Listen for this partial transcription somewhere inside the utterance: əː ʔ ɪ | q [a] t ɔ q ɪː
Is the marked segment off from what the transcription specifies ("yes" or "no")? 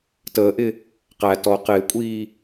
yes